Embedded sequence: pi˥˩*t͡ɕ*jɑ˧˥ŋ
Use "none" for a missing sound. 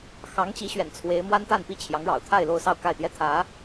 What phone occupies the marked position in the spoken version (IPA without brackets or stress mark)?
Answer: t͡ɕʰ